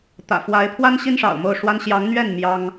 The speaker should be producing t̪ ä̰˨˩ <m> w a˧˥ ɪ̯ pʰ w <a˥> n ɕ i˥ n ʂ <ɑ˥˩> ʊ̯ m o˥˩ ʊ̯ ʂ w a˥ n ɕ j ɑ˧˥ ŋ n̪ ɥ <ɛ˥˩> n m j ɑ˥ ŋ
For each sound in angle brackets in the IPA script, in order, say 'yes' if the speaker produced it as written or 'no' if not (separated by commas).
no, yes, no, yes